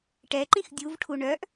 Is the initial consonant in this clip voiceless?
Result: yes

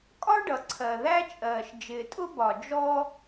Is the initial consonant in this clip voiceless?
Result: yes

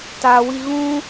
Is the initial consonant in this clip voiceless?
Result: yes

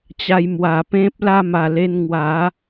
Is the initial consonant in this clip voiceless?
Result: yes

